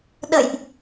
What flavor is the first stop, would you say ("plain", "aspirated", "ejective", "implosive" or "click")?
implosive